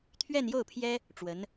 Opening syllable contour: falling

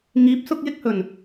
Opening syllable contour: rising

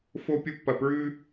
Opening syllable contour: high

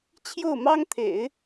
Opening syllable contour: falling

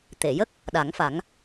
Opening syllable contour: low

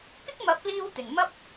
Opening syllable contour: high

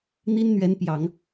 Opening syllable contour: high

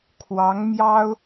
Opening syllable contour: rising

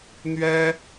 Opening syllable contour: high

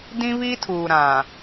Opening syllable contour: high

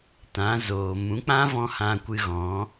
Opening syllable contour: rising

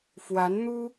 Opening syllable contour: rising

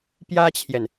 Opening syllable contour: high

